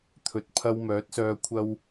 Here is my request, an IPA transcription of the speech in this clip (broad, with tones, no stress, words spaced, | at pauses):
t̪ʰɵ˨˥t̚ pʰɐ˧wmœː˨˥t̚sœː˧ kʷʰɐ˥w